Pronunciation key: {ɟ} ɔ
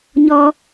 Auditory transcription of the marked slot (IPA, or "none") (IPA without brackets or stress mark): ɲ